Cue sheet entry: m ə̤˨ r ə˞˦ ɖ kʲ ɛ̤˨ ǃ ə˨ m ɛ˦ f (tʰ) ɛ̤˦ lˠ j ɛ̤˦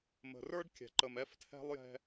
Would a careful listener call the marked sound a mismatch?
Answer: no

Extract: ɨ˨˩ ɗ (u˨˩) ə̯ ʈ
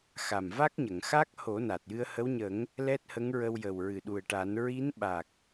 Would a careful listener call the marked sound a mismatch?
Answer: no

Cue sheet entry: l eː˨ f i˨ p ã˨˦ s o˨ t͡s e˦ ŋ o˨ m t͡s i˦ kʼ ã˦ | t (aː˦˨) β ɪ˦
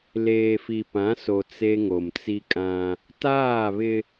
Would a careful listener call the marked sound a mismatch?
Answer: no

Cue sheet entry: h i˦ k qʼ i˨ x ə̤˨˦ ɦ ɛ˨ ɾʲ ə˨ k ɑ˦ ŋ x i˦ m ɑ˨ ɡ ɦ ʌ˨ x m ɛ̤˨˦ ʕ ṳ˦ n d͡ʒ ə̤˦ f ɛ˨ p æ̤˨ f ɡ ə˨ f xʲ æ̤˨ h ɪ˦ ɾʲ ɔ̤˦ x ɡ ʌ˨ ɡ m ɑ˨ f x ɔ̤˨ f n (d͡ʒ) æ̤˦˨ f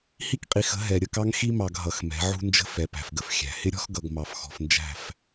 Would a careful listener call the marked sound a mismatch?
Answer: no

